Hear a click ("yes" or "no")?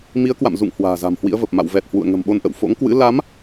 no